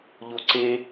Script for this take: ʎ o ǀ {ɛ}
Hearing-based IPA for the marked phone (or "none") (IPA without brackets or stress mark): e